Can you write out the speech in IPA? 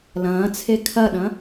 l ɐ̃ː t͡sʰ e kʰ ɐ ɗ ɐ̃

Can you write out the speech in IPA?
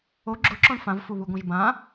o ɡ͡ǁ ʊ ǁ ɔ̃ ɳ f ã v f u β u ɡʷ ã ʒ b ã

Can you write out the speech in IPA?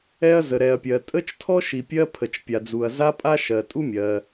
ɛ˥ ɐ̯ z ə˩ ɾ ɛ˩ ɐ̯ pʲ ɜ˩ tʼ ə˥ t͡ʃ tʰ ɔ˥ ʃ i˩ pʲ ɜ˥ pʰ ə˩ t͡ʃ pʲ a˩ d͡z u˩ ɐ̯ z a˥ pʼ a˥ ʃ ɜ˩ tʼ u˥ mʲ ɜ˩

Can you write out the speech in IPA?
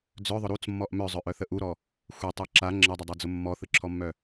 d͡z œ ðˤ ʊ ɾ u t͡s mː ɔ ʔ m œ zˤ œ ʔ œ θ ə ʔ u ɾ ɔ | xʷ e tˤ e ǁ a ŋ͡ǁ ə dˤ ə dˤ a d͡z ʊ mː ɔ θ ɯ ǁʰ ɔ mː œ

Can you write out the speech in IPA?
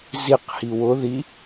z i q h i w ʊ ð i

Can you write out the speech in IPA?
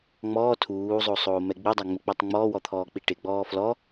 ŋ͡m ɔː tʰ uː zˤ o sˤ oː m ɛ ɡ͡b i dˤ a ŋ͡m ɪ k͡p ɔ tˤ ŋ͡m ɔː w ɔ t̪ʰ ɔː k͡p i ʈ ɪ ɡ͡b ɔː f l ɔ

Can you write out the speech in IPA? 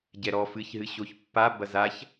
ɟ ɛ ɾ ɔ f ɨ ç ɦ ɨ ɕ o ç pː a b ɐ z a ç

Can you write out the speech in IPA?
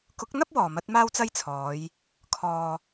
k ʊ˨˥ k̚ n̪ ɐ˥ p̚ w ɔː˨˩ m ɐ˨˥ t̚ m aː˥ w t͡s ɐ˥ j t͡sʰ ɔː˨˧ j | kʰ ɔː˨

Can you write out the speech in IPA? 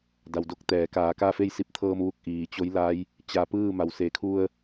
d a˩ w d o˧ k̚ t̪ ɛː˩˧ k aː˩˧ k a˥˨ f e˥˨ j s i˧˥ p̚ t̪ʰ ɤː˧ m ʋ u˧˩ k̚ ʔ iː˩ t͡ɕ o˧˥ j l a˧˥ j | t͡ɕ a˧˩ p ɯː˥˨ m a˩ w s e˩˧ kʰ u˧ ə̯

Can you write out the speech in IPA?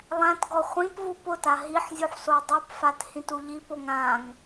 lˠ æ̃ t ɡ ɔ χʷ ĩ p v u p ʊ t a ɦ i ħ zʲ u ħ s o dˤ u p f a t h ĩ t u ʎ i p o ŋ ã ŋ

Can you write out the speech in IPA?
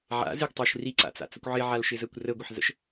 ʕ a̰ z ɪ ɡ tˤ əː ʃ r i ǀ a̰ t͡s a̰ t͡s ə kʷ ʕ ɪ ʕ a l ʃ ɪ z əː kʷ r ə ɡʷ ɘ ħ z ə̰ ʃ

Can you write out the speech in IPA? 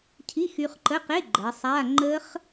cʰ i˧˥˧ x y˧ χ ǃ ə˧˥˧ q e˧˥˧ ɡ͡ǃ ɜ˩˧ sˤ a˧˥˧ ŋ͡ǃ ə˦˥ χ

